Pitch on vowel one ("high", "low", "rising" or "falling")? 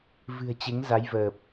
low